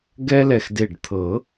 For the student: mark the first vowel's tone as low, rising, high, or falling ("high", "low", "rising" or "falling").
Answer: high